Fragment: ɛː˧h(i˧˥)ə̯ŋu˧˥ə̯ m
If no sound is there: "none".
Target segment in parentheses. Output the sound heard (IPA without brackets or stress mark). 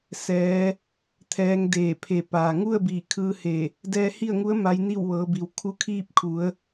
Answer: i˥˨